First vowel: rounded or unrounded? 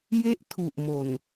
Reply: unrounded